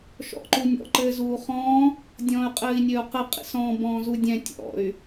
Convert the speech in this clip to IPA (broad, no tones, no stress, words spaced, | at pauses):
ʃɔ̰ǃunʲɔ̰ ǃɘːzuːχɔ̃ː | dʲɔ̃ːy̯qʼɘːi̯nʲɘːu̯qɘ qʼḭsɔ̃ː bɔ̃ːzudʲɛ̃ tʲɔ̰y̯